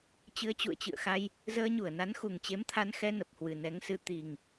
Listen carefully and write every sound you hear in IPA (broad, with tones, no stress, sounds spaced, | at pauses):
t͡ɕ ɨ˧ ə̯ t͡ɕ ṵ˧˨ ə̯ t͡ɕ ɨ̰˧˨ ə̯ x a˧ j | z əː˧ ɲ u˧˩ ə̯ n a˨˦ n x u˨˩ ŋ t͡ɕ e˨˦ m t̪ʰ a˧ n x ɛ˧ n ə˨˩ p̚ h w ɨ˨˩ n ɛ˨˦ ŋ s ɨ˧ t̪ i˨˩ ŋ